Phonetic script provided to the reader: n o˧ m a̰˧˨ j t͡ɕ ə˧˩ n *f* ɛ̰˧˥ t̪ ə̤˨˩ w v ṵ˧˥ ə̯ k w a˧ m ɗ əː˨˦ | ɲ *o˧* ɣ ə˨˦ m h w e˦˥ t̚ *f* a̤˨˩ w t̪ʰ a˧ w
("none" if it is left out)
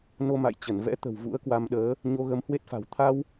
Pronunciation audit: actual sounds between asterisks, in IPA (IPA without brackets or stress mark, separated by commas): v, o˧, f